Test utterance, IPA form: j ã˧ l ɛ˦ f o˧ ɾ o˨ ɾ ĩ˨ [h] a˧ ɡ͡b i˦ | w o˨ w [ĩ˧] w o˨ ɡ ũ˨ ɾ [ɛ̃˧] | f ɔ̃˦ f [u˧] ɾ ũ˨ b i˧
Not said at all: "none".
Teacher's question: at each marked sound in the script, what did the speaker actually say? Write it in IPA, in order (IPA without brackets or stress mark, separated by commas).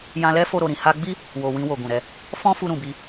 h, ĩ˧, ɛ˧, u˧